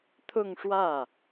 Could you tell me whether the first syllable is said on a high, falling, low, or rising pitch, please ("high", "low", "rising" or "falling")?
falling